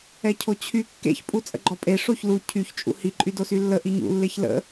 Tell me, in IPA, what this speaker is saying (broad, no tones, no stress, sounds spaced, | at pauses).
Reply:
ɛ cʰ o t͡ɕʰ y kː ḛ ç pʼ u t͡sʼ ə̰ ɡ͡ǃ ɔ pʼ e ʂ o ç l u cʰ y ç t͡ʃʼ ṵ h i ǃʼ y d o s y lː ə ʔ i ɲ ṵ lː e ç l ə̰